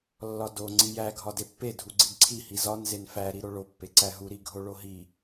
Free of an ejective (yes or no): yes